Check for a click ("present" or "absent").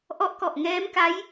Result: absent